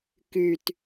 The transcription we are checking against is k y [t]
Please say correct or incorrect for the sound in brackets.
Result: correct